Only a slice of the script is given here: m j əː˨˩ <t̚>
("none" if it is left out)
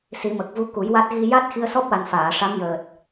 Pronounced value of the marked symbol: t̚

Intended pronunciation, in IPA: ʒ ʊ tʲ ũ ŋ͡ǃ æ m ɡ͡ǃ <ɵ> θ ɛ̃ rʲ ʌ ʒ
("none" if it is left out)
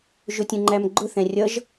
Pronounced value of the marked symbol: ʊ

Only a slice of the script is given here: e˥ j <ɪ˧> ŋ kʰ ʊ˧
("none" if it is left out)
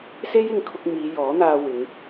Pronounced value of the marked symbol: ɪ˧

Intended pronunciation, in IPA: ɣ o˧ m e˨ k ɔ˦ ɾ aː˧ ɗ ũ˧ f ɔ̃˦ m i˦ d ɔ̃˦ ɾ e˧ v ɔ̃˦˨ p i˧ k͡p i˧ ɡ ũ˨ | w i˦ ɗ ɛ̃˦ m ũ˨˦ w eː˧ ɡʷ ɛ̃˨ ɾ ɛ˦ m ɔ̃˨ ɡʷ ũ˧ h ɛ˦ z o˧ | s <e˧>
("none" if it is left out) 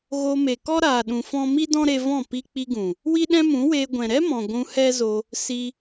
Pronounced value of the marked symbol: i˧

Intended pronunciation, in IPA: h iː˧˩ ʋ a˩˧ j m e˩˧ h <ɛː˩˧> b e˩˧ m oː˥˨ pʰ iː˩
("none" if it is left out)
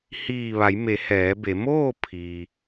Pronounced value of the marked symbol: ɛː˩˧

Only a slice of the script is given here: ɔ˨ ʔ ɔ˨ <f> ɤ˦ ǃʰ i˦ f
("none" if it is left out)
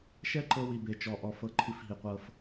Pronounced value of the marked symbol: f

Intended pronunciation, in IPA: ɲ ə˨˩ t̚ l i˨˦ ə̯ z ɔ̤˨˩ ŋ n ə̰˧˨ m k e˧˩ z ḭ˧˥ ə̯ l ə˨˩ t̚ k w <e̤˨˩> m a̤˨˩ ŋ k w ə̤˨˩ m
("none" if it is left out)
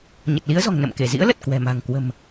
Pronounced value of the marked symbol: ɛ̤˨˩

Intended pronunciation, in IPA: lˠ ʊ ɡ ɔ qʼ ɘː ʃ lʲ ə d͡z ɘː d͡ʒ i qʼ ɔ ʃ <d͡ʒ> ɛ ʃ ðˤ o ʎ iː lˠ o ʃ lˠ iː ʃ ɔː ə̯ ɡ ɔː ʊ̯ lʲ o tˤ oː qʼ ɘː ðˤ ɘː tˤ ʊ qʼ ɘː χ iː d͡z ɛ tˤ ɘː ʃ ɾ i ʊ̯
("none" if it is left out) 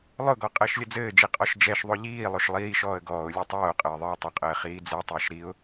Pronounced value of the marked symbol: d͡ʒ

